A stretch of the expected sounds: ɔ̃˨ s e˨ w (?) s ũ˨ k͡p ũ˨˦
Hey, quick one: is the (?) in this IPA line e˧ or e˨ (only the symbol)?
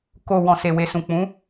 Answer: e˨